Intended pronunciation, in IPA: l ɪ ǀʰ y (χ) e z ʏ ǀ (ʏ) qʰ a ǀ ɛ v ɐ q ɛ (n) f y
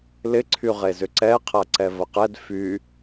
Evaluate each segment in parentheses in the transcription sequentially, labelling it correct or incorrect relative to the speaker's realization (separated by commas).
incorrect, incorrect, incorrect